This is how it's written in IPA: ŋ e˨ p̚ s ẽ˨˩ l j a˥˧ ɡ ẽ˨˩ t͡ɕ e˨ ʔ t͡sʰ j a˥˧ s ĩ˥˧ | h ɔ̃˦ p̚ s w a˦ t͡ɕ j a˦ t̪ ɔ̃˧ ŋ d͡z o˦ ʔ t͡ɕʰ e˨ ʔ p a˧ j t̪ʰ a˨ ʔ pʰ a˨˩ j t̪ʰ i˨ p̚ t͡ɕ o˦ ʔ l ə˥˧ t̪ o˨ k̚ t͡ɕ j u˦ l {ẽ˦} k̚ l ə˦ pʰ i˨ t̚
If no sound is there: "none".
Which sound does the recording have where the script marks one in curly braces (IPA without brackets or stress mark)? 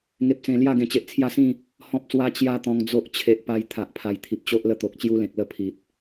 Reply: ẽ˨